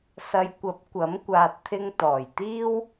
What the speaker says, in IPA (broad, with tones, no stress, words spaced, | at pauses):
sɐ˨jkʷɐ˨˥p̚ kʷɐ˨˥m kʷaː˨t̚t̪ʰɪ˧ŋ t̪ɔː˨˩jt̪iː˥w